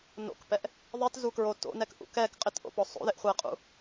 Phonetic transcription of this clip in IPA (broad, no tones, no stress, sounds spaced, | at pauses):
n o̰ k p ɛ ʔ | ðˤ i t z u k ɹ o t o̰ n ɛ k ʔ ṵ k ɛ k qʼ ɪ t ʔ o̰ p ɔ sˤ o̰ ð ɪ ʔ χʷ ɛ qʼ ṵ